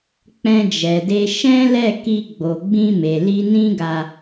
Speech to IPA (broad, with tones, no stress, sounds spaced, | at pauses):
k͡p ɛ̃˧ d͡ʒ ɛ˨ d e˧ ʃ ɛ̃˦ l ɛ˦˨ k i˧ ɡ͡b o˨ ɡ͡b ĩ˧ m e˨ l i˧ n ĩ˦ ɡ a˧